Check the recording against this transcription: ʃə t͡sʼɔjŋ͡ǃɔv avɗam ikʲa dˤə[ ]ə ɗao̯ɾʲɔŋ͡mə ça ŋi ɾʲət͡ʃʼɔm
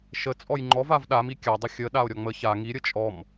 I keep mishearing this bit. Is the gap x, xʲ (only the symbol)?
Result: xʲ